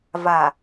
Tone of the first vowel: low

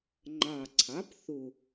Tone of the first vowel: low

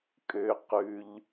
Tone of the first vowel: low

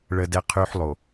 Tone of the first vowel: high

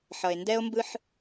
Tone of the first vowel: low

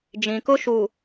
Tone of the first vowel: low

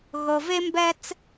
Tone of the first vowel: low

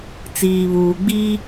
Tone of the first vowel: low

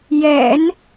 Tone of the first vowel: low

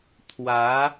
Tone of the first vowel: rising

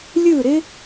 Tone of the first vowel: falling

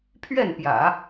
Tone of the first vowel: falling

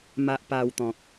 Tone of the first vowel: low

